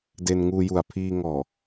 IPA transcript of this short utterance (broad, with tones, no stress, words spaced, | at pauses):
de˧nŋuː˧ju˨˩a̯ pʰiː˧ŋɔː˨˩